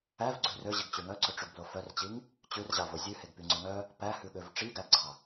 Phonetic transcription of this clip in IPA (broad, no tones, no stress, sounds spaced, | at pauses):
æ v ɡ͡ǀ ʉ r ø ʑ i ɡ t͡ɕ ʉ ŋ œ ǀ ɵ ʈ͡ʂ y ɡ b l o f œ r t͡ɕ i ŋ | t͡ɕ ʉ r ʑ ɑ v o zʲ ʉ h e ɡ p y ŋ͡ǀ œ ŋ œ | p æ h ʉ ɠ ø v ʈ͡ʂ i ɡ æ ɡ ɡ͡ǀ ɑ